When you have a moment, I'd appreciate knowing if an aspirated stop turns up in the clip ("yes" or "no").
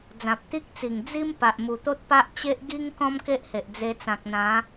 no